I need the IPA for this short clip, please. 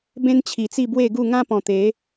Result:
b ẽ˦ n t͡ɕʰ i˨˩ t͡s i˥˧ b w e˥˧ ɡ u˥˧ ŋ ã˦ p ɔ̃˨˩ t̪ e˨˦

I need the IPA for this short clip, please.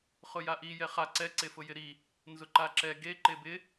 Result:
χ ʊ j a ʔ i j ɛ χ a ǀ ɛ ǀ e f ʊ j ɪ ɾ i | n z ʊ ǃ a ǁ ɛ ɡ e ǃ e b ɪ

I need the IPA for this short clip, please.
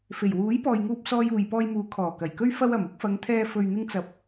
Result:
f e˨˩ j w uː˨˥ j p ɔː˨ j ŋ uː˧ p̚ s ɔː˧ j uː˨ j p ɔː˧ j m uː˨˥ kʰ ɔː˨˩ k ɐ˨˩ j k ɵ˥ ɥ f ɐ˧ w ɐ˨˩ m ʊ˨˥ k̚ f ɐ˨˧ ŋ t̪ʰ ɛː˧ f ɵ˨ ɥ n̪ ɪ˧ ŋ t͡s ɐ˨ p̚

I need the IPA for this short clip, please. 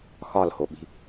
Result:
x ɒ l h o ɓ i̤

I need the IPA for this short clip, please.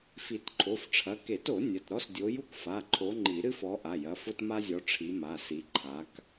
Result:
f i˨˩˦ t ǃʰ o˩˧˩ f ʈ͡ʂʰ ɐ˩˧˩ k e˨˩˦ t o˨˩˦ nʲ ɐ˩˧˩ t ɾ ɔ˥ s dʲ o˨˦ j u˥ k f a˩˧˩ ǃʰ o˨˦ ŋ͡ǃ i˨˩˦ ɾ ɨ˥ f ɔ˨˦ ʔ a˩˧˩ j ɐ˩˧˩ f o˥ t m a˥ zʲ ɔ˨˦ ʈ͡ʂʰ i˨˦ m a˩˧˩ s i˨˦ ǃʰ a˨˦ k

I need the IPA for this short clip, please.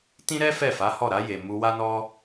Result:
t ĩ˦ ɾ ɛ˦ f ɛ˦˨ f a˨˦ h ɔ˦˨ ɾ a˧ j e˨ m u˧ w a˦ n ɔ˦

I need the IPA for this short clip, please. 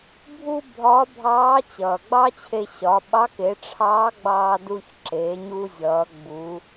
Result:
bʱ u˥ bʱ ɒ˧˥ bʱ ɑː˧˥ t͡ɕ ʌː˩ ɡ͡b ɑ˥ t͡ɕʰ e˧ ɕ ɒ˩˧ ɓ ɑ˧˥ k e˩˧ ʈ͡ʂʰ ɑː˧˥ ɡ͡b ɑː˧ d u˧ ç ǁ eː˩˧ ɲ u˧ zʲ ʌː˩˧ ɡ͡b u˩˧

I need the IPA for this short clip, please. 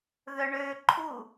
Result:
ð œ ɳ ø ǃʰ u

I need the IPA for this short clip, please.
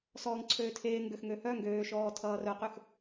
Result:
s ɔː ŋ ǀʰ øː tʰ eː ŋ ɡ ø x ŋ ø h œ ŋ ɡ øː ʃ ɔː tʰ ʌː r œ q ø x

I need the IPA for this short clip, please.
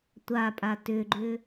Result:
tʷ a pʼ a t ʏ ɡ͡ǃ ʏ

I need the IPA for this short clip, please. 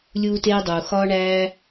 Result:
lʲ uː˦ t eː˦ dˤ uː˨ x ɒː˦ ɳ æː˦

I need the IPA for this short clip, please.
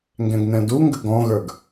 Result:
ŋ ɡ ɛ̃ ɡ n ɛ̃ d u ŋ ɡ ə ɡ ɔ̃ ɣ ə˞ ɡ

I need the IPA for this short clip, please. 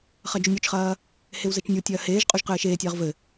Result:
χ ɐ d͡ʒ u nʲ u t͡ʃ χ ɐː | h e w z ɘ t͡ʃ nʲ u tʲ ɐː h eː ʒ qʼ u ʒ q ɘː ʃ eː tʲ ɐː ʁ v ɘ

